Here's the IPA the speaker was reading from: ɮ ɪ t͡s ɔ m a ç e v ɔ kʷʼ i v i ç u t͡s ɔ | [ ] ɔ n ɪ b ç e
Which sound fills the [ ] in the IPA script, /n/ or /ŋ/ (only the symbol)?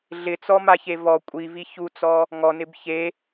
ŋ